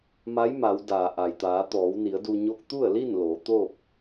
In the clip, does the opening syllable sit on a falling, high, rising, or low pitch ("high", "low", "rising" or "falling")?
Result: rising